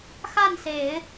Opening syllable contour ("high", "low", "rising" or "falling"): falling